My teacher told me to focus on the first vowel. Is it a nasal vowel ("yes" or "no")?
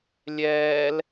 no